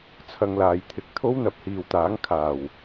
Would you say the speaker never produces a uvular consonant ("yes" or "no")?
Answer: yes